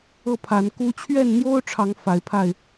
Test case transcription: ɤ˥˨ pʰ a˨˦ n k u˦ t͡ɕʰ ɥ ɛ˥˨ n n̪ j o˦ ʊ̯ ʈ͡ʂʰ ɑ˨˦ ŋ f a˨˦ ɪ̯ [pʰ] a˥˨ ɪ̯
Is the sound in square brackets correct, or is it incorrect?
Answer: correct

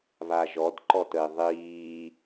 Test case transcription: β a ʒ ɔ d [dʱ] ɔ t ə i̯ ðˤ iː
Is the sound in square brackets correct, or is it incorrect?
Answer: incorrect: ǃ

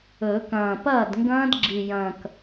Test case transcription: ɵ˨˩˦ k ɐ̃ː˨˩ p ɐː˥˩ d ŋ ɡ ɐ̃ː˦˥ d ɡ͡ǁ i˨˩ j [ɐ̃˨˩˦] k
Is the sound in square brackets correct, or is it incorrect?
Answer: incorrect: ɐ̃˨˩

